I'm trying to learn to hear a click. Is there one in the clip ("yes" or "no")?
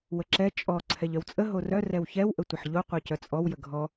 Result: yes